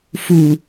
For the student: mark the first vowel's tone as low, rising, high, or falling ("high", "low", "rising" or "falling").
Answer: low